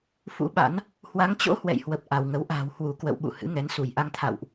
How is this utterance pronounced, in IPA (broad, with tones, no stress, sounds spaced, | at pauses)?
f ṵ˧˥ ɓ a̰˧˥ n | h w a˨˦ ŋ t͡ɕ o̰˧˥ h w ɛ̰˧˨ j h w ə˨˩ p̚ ʔ a˧˩ w ŋ ə˨˦ w ʔ a̤ː˨˩ w h w u˧˩ k w ə̰˧˨ w ɓ ṵ˧˨ h ɨ̰˧˥ ŋ ɛ˨˦ n s u˧˩ j ʔ a˧ ŋ t̪ʰ a̰˧˨ w ʔ